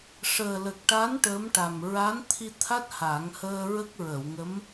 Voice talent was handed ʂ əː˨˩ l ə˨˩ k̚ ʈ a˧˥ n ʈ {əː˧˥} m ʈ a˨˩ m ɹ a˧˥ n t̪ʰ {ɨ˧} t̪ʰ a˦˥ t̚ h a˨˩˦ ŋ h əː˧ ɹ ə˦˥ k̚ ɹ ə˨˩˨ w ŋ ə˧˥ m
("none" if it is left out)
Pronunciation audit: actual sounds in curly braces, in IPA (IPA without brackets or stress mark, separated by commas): əː˧˥, i˧